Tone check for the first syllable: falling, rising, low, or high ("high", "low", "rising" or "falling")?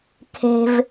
low